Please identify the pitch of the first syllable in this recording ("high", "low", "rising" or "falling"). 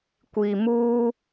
low